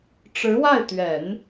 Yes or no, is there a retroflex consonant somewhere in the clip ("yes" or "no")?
yes